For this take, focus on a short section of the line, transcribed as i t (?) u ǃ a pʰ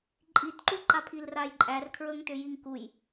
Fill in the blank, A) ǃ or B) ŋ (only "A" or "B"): A